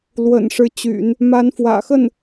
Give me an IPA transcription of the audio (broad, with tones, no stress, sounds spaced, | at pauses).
l w ə̰˨˩ n ʂ ɻ̩˧˥ t͡ɕ y̰˨˩˦ n | m a˧˥ n f w ä̰˨˩ x ə˥˩ n